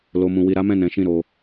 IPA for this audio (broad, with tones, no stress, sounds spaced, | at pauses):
l o˧ m ũ˧ w i˧ ɾ a˦ m ɛ̃˦˨ n ɛ̃˨˦ ʃ ĩ˦˨ ɾ o˧